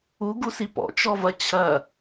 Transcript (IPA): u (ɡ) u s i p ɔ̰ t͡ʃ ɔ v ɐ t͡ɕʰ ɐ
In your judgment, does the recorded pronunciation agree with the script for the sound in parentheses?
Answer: yes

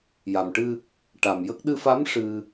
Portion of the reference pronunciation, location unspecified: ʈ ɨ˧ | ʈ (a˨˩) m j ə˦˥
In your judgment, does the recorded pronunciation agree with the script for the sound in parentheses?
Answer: yes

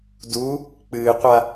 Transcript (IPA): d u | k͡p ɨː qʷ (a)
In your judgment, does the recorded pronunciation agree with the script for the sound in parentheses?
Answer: yes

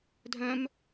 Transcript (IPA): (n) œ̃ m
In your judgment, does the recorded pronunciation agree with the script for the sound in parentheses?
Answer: no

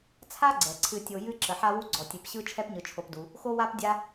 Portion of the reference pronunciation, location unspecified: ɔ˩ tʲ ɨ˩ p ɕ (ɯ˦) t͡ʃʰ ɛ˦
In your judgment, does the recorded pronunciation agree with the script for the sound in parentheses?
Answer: yes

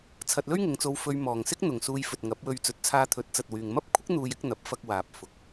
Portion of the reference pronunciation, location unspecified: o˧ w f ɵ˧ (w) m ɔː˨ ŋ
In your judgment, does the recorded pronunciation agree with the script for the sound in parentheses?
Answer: no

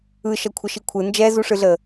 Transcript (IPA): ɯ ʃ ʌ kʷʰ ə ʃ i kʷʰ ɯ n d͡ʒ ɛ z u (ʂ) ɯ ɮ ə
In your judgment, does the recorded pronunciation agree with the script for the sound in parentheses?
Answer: yes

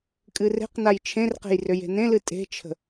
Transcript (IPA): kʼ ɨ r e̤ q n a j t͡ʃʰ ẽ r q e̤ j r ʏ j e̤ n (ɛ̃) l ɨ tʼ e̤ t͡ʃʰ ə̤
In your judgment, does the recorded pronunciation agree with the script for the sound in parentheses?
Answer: no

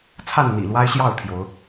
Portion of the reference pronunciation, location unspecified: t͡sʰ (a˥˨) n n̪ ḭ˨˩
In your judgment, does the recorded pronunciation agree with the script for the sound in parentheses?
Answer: yes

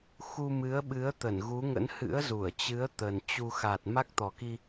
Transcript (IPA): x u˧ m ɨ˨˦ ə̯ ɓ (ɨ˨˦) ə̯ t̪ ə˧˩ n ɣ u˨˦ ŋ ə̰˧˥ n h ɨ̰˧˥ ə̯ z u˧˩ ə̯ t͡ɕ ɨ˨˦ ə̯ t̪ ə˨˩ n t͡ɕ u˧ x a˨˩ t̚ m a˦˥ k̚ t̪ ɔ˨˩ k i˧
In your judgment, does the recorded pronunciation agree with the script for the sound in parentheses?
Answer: yes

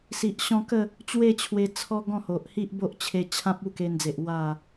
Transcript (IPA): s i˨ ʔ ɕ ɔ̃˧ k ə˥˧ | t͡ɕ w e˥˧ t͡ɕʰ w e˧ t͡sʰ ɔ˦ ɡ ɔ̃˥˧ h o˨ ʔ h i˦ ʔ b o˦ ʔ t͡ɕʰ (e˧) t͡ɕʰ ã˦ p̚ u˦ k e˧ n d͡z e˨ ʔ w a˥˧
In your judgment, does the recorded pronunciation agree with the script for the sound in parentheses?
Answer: yes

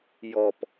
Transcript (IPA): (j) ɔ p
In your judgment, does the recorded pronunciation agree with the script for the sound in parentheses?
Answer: yes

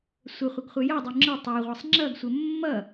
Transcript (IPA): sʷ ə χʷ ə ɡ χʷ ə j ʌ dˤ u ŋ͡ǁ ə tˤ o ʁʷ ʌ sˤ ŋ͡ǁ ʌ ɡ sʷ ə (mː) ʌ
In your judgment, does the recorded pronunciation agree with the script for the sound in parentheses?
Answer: yes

